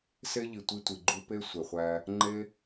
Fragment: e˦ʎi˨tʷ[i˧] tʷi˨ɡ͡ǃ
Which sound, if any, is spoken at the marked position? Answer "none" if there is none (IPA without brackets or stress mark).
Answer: i˧